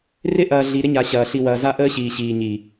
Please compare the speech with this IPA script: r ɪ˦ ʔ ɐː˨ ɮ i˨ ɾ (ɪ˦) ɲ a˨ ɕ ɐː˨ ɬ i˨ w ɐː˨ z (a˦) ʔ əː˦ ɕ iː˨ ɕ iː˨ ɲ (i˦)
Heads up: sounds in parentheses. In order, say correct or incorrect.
correct, correct, incorrect

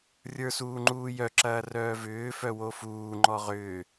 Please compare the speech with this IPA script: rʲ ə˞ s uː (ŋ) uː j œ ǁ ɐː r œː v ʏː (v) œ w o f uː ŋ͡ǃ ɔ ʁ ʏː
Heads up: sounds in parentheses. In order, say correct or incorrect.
incorrect, incorrect

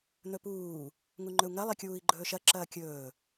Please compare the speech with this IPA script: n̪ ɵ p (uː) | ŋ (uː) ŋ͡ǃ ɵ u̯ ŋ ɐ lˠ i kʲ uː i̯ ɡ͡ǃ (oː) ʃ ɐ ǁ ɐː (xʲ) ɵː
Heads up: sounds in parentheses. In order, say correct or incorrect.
correct, incorrect, incorrect, incorrect

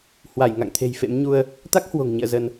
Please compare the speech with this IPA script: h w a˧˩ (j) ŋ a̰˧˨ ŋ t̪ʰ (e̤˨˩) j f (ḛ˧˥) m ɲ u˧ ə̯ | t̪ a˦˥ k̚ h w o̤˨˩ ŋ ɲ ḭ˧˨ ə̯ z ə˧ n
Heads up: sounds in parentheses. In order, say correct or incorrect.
correct, correct, correct

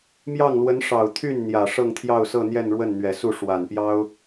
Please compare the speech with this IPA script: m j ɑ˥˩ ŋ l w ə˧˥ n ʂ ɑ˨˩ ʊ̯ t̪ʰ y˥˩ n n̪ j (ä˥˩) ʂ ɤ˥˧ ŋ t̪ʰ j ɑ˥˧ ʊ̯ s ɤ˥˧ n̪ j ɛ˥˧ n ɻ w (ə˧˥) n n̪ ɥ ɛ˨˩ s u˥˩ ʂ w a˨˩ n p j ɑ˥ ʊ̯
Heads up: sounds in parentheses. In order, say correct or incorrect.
incorrect, incorrect

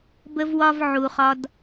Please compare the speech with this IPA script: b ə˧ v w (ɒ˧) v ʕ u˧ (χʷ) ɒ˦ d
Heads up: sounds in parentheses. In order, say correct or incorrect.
correct, incorrect

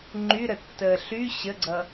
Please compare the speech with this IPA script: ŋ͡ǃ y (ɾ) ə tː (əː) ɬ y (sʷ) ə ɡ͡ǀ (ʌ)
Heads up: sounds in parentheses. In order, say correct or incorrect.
correct, correct, incorrect, correct

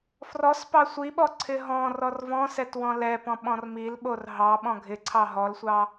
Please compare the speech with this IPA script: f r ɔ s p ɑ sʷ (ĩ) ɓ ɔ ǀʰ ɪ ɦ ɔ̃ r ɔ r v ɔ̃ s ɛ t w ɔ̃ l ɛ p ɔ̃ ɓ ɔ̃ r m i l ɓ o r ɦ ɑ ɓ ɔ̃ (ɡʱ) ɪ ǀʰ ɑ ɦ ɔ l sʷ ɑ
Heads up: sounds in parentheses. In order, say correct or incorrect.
incorrect, correct

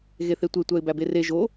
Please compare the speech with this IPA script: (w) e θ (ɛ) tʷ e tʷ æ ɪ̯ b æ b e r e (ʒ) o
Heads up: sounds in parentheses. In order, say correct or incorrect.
incorrect, incorrect, correct

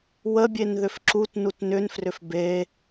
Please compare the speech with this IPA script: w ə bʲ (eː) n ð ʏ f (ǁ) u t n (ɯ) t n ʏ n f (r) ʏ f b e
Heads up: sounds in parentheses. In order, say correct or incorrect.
incorrect, correct, incorrect, correct

